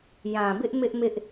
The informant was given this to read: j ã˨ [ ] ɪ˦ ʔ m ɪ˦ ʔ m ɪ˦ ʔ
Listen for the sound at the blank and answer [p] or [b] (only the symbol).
b